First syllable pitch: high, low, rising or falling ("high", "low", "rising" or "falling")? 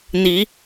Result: rising